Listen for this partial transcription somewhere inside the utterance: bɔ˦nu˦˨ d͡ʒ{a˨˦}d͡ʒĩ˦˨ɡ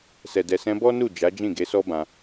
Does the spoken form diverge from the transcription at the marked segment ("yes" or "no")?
no